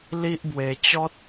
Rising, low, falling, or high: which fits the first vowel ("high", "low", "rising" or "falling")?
high